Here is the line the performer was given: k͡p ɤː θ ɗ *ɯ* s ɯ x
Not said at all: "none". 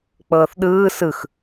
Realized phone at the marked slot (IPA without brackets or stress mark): ɯː